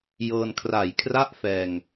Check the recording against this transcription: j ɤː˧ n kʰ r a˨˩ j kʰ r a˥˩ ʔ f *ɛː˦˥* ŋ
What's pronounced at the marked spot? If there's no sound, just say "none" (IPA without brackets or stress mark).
ɛː˧